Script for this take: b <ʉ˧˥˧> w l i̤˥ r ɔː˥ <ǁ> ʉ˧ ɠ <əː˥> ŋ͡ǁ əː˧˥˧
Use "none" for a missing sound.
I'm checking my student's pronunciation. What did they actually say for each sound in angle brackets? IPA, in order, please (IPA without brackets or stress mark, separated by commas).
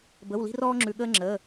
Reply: ə˧˥˧, ŋ͡ǁ, əː˥